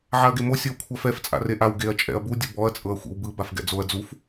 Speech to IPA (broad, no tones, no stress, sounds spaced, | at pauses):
ʕ a ɐ̯ ɡ e m o sʲ ɤ w kʷʰ a f ɛ f t͡sʼ a̰ r e ʔ a w ɡ e ɐ̯ t͡ʃʼ ɛ̰ ɐ̯ b u dʲ o b ɔ ɐ̯ t͡sʼ ɤ ɐ̯ xʷ ḭ w b ɯ b a f ɡ ɛ̰ d͡z o ɐ̯ d͡z u f